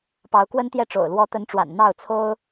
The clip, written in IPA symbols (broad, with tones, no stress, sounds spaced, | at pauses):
p ɑ˨˦ ʊ̯ k w ə˦ n t̪ j ɛ˦ ʈ͡ʂ o̰˨˩ ʊ̯ l w ɔ˨˦ t̪ ə˨˦ n ʈ͡ʂ w a̰˨˩ n n̪ ɑ˥˨ ʊ̯ t͡sʰ o˦ ʊ̯